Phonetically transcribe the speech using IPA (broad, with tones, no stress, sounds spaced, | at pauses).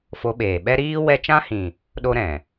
f o˧ ɓ eː˨ ɓ ɛ˦ ɾ iː˦ w ɛ˦ t͡ʃ ã˦ h ĩ˨ | ɗ o˦ ɾ ɛ̃˨